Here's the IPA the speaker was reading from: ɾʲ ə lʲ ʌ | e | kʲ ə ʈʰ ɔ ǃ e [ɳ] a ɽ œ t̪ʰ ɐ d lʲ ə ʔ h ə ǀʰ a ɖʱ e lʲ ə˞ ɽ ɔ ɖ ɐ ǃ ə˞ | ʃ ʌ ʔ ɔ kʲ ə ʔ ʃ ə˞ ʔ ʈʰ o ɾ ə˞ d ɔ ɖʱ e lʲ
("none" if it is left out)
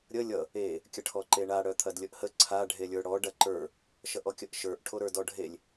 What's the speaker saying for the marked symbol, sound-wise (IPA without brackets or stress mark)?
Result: ɳ